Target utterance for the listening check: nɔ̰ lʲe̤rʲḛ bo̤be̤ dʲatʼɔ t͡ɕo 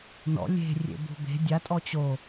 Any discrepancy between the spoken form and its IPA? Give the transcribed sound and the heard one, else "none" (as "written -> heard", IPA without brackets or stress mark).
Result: none